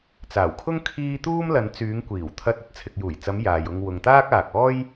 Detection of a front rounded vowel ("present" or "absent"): present